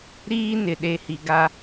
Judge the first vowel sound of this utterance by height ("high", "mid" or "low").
high